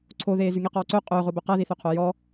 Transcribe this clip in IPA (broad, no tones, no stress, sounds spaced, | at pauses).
ǀʰ o ð eː z y ŋ i q ɔː ǀ ø qʼ ɵː ʁ o b ɵ q æ ð i θ ø qʰ o j ɔ